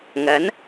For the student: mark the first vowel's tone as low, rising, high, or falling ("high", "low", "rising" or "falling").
rising